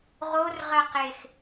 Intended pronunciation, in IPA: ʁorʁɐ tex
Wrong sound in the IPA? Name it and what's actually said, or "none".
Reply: t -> q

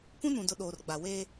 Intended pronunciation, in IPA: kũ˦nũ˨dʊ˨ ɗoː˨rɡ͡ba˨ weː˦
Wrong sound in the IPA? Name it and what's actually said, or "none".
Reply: none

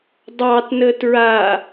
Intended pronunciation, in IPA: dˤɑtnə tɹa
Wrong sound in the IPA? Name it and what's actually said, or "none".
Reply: none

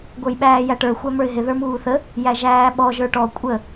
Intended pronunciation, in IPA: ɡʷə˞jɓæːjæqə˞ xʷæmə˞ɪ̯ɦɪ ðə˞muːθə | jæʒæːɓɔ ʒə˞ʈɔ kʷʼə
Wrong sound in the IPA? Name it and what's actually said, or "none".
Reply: q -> ʈ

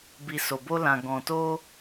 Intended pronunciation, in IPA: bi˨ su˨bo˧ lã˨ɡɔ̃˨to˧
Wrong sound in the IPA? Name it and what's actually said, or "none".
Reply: u˨ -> o˨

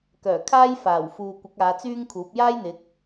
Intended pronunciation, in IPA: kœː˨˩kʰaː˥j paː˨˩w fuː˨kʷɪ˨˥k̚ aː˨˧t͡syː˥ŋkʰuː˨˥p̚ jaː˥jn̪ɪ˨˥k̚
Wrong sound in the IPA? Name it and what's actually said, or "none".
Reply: p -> f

